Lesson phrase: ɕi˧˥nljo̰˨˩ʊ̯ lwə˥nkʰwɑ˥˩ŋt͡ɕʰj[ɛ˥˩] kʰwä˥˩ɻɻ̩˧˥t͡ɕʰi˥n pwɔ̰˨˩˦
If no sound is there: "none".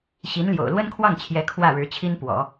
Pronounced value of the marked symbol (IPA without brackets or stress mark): ɛ˧˥